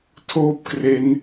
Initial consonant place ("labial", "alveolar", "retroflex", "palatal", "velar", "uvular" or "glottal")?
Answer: alveolar